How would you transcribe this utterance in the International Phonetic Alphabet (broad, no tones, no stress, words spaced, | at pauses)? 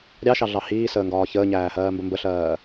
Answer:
ɾʲɑʃɑɮɑ hiːsəːŋɡɒː çəːɲæːhɜːmbə mbəɬɜː